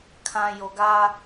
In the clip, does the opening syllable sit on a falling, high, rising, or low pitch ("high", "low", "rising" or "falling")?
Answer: low